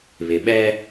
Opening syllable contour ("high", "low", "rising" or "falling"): low